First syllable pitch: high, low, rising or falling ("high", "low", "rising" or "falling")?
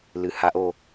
low